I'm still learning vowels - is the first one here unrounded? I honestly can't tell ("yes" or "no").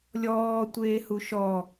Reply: no